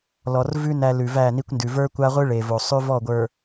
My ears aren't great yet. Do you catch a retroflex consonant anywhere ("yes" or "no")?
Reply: yes